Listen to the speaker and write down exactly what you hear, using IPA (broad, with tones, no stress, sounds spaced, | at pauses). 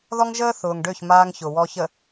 ð ɔ˦ ŋ ʒ əː˦ θ ʊː˨ ŋ ɖ ø˦˨ ç m aː˦ ŋ ç ʊ˨ w ɔ˨ ç ə˨